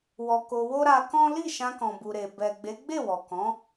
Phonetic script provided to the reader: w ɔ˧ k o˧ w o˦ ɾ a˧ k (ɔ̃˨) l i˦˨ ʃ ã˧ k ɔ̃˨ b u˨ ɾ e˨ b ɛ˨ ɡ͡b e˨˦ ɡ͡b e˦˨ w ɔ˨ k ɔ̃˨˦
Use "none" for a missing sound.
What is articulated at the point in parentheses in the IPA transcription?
ɔ̃˦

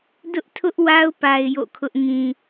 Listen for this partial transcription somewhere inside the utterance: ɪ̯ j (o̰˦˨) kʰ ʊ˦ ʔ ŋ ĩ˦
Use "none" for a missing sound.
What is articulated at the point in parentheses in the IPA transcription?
o̰˦˨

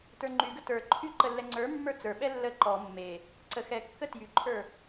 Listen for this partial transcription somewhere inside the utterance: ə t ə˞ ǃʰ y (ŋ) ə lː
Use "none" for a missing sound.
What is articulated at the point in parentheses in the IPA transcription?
ǃ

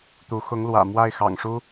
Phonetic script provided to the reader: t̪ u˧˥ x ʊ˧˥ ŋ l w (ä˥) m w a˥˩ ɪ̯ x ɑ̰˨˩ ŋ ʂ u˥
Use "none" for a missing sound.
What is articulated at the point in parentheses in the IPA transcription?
ä̰˨˩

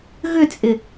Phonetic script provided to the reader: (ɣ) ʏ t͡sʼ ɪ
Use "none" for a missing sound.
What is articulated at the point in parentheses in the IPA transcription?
ɣ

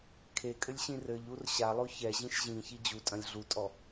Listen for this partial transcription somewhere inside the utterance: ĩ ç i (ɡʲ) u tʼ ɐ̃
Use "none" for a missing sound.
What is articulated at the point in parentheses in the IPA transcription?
d͡ʑ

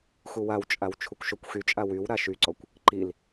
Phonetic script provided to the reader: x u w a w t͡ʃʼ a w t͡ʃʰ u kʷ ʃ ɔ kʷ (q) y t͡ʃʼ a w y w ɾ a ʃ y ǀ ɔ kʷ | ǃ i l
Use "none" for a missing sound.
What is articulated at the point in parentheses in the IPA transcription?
x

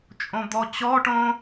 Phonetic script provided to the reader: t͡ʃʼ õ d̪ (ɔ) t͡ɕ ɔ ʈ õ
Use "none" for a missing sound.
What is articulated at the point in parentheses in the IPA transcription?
ɔ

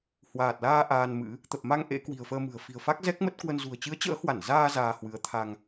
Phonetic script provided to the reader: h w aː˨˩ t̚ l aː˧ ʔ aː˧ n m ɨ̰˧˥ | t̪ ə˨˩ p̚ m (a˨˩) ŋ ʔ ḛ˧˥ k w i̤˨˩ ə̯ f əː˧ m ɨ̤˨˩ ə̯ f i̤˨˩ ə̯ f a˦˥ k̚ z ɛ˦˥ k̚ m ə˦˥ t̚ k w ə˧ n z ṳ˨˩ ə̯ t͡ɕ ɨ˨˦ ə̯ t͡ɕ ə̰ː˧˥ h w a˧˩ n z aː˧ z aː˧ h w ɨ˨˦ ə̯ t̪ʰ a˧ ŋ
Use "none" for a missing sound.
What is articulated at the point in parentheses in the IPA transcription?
a˧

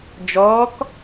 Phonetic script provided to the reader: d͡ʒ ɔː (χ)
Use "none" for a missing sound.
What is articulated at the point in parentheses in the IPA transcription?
k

